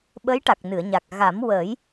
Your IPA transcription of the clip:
ɓə˧˥j ʈa˨˩k̚nɨ˨˩˨ə̯ɲa˨˩k̚ ɣa˨˩˦mwəː˨˩˦j

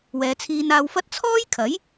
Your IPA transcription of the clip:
wɛː˨˧t͡sʰiː˧naː˧wfɐ˥t̚ t͡sʰɔː˥jkʰɐ˨˥j

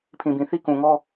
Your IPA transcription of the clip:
pʰĩ˨bĩ˨θi˦ kũ˨ŋɔ˦

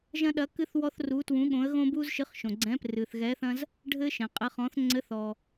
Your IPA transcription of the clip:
ʒɐ̃˦ɗɐ˨˥kɨ˦θ wɔ˦θru˨˥twũ˨˥ɠõ˨˥ə̯ ɣõ˦bu˦z ʃɨ˨˥χʃõ˩ɡ͡ǀɛ̃˨˥ prɨ˩θ ɣɛ˨˥θɐ̃˦z | ɖʱɘ˦ʃɛ̃˩ qʼɘ˨˥χɔ̃˨˥θ ŋ͡ǀɘ˨˥θɔ˩

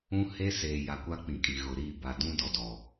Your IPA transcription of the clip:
ũ˦he˦seː˨ ja˨kʷa˦ k͡pĩ˨kʼi˨ ɣʊ˨ ɾi˦˨ ba˨dũ˦dɔ˨dɔ˨

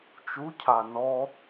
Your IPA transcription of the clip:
t͡ʃu cʰanɔ

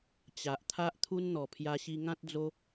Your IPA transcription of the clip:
t͡ɕa˨ʔt̪ʰa˦ʔ t̪ʰu˧nn̪ɔ˨˩ pʰja˧ɕi˧ŋã˦t̚d͡zo˦

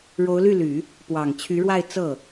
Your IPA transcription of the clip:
ɻo˧˥ʊ̯ly˥˩ly˨˩˦ | pwɑ˨˩ŋt͡ɕʰy˧˥ɻwa˥˧ɪ̯ t͡sɤ˥˩

